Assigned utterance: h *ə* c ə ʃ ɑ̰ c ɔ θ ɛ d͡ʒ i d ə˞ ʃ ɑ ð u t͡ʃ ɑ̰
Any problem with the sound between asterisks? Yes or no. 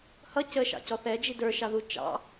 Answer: yes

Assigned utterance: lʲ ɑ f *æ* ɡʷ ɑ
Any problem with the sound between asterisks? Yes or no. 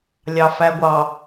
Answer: no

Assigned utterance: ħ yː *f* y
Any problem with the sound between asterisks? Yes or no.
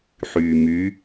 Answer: yes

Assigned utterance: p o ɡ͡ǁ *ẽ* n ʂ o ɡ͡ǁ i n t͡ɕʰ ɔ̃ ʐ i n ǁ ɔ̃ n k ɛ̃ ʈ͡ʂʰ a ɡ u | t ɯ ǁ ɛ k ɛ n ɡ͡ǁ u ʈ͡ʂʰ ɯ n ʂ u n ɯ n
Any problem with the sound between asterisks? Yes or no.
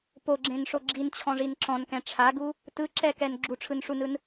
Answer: no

